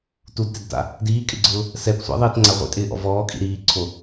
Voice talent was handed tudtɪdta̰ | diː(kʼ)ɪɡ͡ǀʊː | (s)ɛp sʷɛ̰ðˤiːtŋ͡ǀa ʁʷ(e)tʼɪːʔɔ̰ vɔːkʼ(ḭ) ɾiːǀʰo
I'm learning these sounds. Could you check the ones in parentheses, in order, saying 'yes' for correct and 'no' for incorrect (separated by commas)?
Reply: yes, yes, no, yes